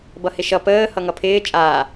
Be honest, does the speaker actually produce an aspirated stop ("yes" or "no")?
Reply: yes